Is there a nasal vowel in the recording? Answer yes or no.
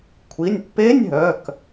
no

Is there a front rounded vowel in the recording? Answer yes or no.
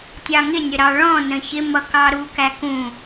no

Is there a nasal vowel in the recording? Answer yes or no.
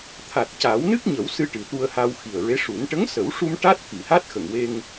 no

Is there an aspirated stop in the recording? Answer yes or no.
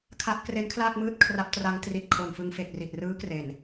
yes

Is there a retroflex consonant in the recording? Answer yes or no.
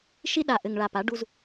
yes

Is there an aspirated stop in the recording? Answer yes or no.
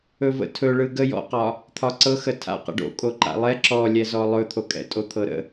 yes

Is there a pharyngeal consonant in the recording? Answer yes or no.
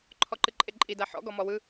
yes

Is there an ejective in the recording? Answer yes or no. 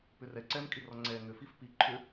yes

